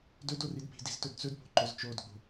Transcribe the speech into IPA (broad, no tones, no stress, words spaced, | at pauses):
dɵd oridpi̤di̤z tɵdt͡sɵdpo̤ ǃɵzt͡ʃodɡ͡bo̤